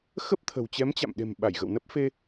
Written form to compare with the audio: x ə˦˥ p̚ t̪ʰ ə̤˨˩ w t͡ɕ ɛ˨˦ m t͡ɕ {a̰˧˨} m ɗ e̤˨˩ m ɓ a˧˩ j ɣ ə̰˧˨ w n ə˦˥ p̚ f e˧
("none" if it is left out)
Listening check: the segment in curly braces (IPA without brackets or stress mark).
a̰˧˨